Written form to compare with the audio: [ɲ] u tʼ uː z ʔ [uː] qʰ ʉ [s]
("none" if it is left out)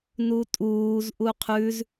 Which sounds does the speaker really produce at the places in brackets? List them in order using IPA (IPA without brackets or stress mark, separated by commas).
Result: n, u, z